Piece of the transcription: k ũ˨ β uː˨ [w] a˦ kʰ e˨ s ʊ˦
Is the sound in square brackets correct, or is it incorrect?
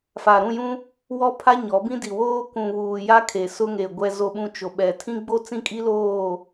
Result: incorrect